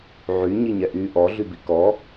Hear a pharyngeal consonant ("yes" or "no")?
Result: yes